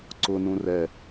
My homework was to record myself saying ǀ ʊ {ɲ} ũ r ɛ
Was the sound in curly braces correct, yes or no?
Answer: no